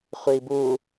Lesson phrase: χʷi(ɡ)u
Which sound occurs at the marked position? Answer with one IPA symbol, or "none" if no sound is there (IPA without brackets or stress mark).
b